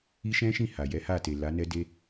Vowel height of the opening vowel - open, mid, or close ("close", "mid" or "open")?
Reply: close